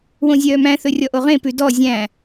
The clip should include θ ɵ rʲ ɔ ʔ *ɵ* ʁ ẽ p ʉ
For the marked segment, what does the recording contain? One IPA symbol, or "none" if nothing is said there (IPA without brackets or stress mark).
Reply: o